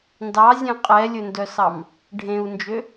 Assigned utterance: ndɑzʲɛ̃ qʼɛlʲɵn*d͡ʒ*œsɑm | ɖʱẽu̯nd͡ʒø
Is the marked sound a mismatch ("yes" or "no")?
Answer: yes